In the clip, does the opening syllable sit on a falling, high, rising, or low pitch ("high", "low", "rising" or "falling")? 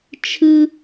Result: high